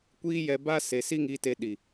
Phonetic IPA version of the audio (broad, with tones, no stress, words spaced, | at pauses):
kʷiː˦jɛ˧ba˦ se˨ si˦ŋiː˧te˧ ɗi˨